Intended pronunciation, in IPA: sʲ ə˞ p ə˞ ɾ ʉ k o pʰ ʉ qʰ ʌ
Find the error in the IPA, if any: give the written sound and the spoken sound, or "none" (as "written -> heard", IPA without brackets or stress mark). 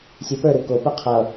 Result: pʰ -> p